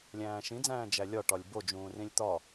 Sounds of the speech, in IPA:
lʲæ̃ːʃĩd͡zæ̃ː d͡ʒælʲɒʈɒlʲ bod͡ʒũː rĩlʲt̪ɒ

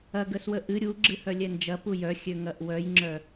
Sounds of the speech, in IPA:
ɐɡəswə ʔɨ ɾʲu ɡ͡ǁɨhœlʲɛnd͡ʒɐ pujœxʲøŋɐʔ wœjŋ͡ǁœ

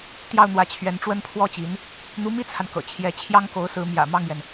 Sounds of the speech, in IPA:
t̪jɑ˥˩ʊ̯n̪wä˧˥t͡ɕʰɥɛ˧˥n ʈ͡ʂwə˥npʰwɔ˥t͡ɕi˧˥n | n̪u˧˥mi˥t͡sʰa˨n kɤ̰˨˩t͡ɕʰjɛ˧˥ t͡ɕʰjɑ˥ŋko˧˥ʊ̯sɹ̩˧˥ mjä̰˨˩mɑ˥˩ŋjɛ˩n

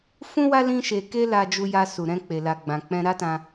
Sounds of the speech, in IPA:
fũ˦wa˦ lĩ˦ʃe˧ ke˦la˧d͡ʒu˧ja˧ su˨ɾɛ̃˧k͡pe˨la˨ ɡ͡bã˨k͡pɛ̃˧ɾa˦tã˧

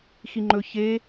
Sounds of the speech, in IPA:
xiŋ͡ǃɵ çe

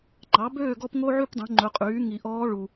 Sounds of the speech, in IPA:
ŋ͡ǃɑ˩˥bøː˥˨ ɡɔ˥pŋo˥ʕy˥pdˤũ˩˥ ŋ͡ǃɵ˩˥qʼyː˩˥ŋi˨ʔɔː˧˥ ɭu˨

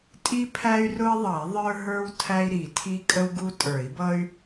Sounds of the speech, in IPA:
tʼi˥pʰæ˥y̯rʊ˥i̯ðˤʌ˨˩˦i̯ ðˤə˞˥ɦə˞˥w tʰæ˥i̯ɾi˨˩˦ tʰi˥ kʼə˥wɡu˥ tʼə˞˨˩˦i̯bʌ˥y̯

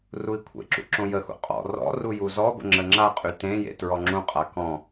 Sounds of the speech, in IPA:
rui̯kʷʰḛǁṵ ǁõjəxṵ qʼɔ̰ rɔ̰ rujuzɔɡʷə̰ ŋ͡ǁəŋ͡ǁaqʼy tẽjḛ tɹɔŋ͡ǁũqʼa kɔ̃

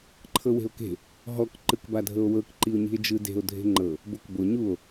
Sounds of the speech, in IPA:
ǃʰɤwe̤o̯ke̤ | ɦɔk ǃɯkbadʱɤo̯wɤk ǃio̯ɲi̤e̯d͡ʒɯde̤o̯ dʱe̤ŋ͡ǃɤ | bokbo ɲuo̯

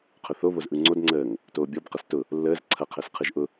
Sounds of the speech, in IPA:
qʰʊθo βozʔɯŋ͡ǀod ŋ͡ǀəːŋ | toːbʲɔb qɐstʊ | lːəːz ǀʰɐ qʰəːsqʰɯʒʔʊ

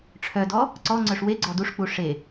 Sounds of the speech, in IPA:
ʈ͡ʂʰœdɔ | ǀɔŋ͡ǀœʂ weɡ͡ǀɔ duʂk͡pu ʂe

